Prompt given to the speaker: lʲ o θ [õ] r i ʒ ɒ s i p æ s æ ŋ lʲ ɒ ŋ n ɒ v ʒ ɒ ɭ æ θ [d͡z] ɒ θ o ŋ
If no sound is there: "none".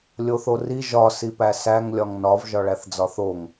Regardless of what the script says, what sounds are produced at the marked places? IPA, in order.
o, d͡z

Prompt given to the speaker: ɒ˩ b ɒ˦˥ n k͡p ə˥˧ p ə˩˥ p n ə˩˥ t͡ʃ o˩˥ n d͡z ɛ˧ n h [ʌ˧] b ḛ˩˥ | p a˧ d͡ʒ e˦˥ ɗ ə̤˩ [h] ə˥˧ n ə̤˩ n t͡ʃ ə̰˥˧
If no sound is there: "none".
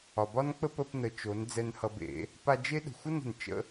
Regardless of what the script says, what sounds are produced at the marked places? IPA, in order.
ʌ˧, xʷ

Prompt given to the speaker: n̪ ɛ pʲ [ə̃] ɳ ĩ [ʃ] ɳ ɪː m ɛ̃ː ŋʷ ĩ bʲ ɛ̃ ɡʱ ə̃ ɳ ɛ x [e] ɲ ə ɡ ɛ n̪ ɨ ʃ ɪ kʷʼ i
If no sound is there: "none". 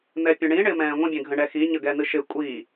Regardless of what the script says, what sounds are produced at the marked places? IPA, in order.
ə̃, none, i

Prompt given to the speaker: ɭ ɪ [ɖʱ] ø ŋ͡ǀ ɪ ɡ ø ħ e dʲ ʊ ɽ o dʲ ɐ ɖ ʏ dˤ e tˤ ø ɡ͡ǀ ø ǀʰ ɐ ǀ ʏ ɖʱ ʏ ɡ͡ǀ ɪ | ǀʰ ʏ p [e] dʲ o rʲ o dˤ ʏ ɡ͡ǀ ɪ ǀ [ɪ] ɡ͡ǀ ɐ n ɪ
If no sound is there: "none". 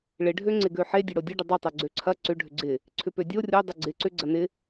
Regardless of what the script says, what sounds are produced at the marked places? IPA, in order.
ɖʱ, ø, ʏ

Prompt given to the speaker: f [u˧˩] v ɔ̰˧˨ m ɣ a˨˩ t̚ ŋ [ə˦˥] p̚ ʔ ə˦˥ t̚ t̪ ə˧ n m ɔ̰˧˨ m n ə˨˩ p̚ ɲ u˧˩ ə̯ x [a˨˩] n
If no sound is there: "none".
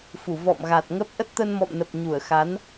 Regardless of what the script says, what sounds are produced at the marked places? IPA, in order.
u˧˩, ə˦˥, a˨˦

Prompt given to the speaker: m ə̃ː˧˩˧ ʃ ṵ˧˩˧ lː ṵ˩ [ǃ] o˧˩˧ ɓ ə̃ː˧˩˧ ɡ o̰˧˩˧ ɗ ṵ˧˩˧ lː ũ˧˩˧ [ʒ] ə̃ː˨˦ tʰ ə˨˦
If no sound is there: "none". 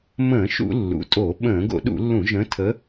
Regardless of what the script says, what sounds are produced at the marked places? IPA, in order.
tʼ, ʒ

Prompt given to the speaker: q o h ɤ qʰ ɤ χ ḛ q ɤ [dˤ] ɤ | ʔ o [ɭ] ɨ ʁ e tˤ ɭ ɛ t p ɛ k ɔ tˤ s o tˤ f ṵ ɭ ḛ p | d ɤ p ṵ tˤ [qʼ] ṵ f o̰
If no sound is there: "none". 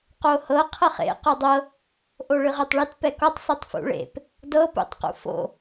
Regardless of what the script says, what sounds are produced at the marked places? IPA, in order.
dˤ, ɭ, q

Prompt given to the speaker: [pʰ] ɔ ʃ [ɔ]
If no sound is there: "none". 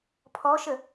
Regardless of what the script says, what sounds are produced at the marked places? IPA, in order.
pʰ, ə

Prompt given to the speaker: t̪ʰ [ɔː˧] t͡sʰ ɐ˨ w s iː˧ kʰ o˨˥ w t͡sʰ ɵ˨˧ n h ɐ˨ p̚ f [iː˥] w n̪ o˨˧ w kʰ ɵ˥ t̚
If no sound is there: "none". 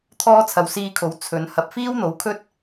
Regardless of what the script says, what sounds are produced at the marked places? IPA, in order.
ɔː˧, iː˥

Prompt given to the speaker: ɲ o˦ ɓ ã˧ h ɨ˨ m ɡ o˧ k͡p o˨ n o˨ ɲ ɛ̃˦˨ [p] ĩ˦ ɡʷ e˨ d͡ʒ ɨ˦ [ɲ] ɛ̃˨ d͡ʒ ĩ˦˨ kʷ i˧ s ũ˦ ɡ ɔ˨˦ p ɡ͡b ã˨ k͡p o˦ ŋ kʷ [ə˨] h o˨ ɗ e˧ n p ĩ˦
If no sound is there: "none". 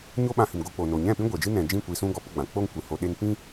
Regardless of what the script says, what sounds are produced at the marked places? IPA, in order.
p, n, ɨ˨

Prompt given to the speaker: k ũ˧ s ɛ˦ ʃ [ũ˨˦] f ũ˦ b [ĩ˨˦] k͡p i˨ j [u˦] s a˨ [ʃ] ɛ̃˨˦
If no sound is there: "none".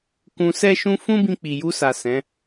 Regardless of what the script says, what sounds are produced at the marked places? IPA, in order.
ũ˦, ĩ˧, u˧, s

